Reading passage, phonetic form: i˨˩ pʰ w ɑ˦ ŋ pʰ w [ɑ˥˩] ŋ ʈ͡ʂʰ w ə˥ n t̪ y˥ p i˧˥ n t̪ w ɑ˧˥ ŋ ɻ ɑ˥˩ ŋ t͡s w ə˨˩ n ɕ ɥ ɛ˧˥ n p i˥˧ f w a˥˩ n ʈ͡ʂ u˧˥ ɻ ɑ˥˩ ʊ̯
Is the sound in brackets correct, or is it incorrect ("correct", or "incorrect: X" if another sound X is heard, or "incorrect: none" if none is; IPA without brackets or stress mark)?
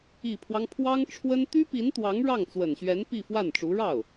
incorrect: ɑ˥